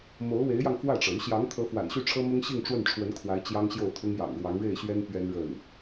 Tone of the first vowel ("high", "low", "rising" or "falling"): rising